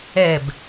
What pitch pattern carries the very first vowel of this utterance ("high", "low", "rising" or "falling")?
falling